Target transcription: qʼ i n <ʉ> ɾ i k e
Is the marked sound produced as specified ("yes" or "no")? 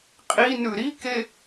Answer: yes